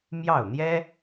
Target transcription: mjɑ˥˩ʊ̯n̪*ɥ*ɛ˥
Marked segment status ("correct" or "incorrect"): incorrect